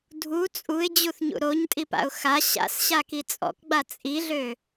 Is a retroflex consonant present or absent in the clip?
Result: absent